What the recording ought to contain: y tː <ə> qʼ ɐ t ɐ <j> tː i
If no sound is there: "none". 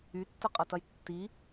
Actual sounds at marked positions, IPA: ə, j

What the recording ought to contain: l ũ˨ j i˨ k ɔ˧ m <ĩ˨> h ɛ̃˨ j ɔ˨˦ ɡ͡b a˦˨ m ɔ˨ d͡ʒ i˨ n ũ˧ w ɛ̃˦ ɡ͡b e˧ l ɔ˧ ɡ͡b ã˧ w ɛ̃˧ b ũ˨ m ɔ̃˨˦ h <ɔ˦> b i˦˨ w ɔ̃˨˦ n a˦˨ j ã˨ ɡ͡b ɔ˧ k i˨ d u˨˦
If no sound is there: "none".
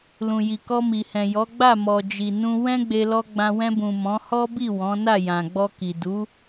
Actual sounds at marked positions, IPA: i˨, ɔ˦

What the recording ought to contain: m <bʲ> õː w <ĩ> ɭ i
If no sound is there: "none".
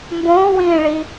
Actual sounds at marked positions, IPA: b, ĩː

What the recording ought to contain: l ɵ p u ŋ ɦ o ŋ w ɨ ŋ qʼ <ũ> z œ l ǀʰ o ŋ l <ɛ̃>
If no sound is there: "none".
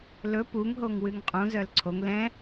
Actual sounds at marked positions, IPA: ũ, ɛ̃

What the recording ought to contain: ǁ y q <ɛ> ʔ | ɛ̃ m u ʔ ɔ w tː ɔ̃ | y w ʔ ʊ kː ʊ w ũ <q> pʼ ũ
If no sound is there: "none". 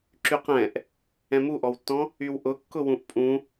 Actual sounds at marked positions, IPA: ɛ̃, ʔ

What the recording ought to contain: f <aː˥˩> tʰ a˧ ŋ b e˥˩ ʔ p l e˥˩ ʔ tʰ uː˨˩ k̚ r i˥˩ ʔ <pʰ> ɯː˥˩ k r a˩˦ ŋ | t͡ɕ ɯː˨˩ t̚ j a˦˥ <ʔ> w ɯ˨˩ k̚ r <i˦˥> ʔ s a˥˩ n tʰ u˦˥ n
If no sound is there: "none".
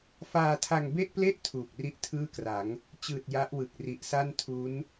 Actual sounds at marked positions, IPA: aː˧, tʰ, ʔ, i˨˩

